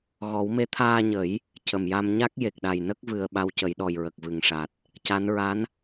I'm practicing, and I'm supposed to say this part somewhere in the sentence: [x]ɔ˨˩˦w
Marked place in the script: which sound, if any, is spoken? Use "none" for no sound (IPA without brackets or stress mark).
ɣ